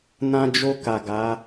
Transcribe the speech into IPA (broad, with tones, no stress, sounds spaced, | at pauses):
n ã˧ d͡ʒ o˧ k a˨ ɡ a˨˦